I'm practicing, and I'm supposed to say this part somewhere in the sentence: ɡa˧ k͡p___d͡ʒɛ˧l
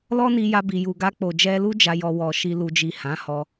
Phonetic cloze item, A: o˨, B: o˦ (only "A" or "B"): A